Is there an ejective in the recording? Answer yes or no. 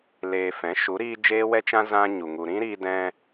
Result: no